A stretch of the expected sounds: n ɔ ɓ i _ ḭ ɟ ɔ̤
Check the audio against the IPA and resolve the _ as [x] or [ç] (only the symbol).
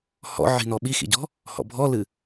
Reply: x